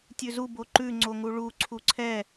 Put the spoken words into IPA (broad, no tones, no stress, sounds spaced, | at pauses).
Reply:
tʲ ʉ z u b o ǃ ʉ ŋ͡ǀ o ŋ u ɭ u ǀʰ u ǀʰ ɛ